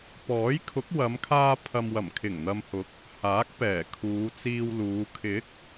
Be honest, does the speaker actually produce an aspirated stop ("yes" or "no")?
yes